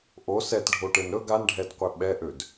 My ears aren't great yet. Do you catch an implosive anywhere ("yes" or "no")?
yes